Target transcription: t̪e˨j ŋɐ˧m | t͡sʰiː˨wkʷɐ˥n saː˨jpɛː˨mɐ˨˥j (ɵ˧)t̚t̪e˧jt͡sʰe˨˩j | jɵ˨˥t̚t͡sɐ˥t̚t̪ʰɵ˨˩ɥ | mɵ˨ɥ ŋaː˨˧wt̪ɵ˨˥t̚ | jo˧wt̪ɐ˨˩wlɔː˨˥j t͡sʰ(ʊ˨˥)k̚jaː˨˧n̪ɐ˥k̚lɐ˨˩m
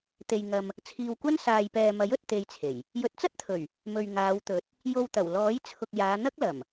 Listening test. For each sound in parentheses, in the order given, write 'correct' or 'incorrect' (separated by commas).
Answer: incorrect, incorrect